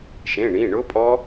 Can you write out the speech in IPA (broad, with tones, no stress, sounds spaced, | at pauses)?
ʃ ẽ˩˧˩ ɳ ĩ˩˧˩ ɳ ʊ˦˥ pʼ ɔ˦˥